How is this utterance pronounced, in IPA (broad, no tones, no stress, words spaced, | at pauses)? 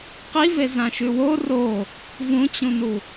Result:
qivezãʃʉ wo ro | vũt͡ɕũnu